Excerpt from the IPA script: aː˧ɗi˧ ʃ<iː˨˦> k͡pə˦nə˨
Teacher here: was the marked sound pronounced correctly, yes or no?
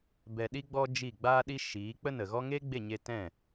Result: yes